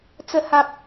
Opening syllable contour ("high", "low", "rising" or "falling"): high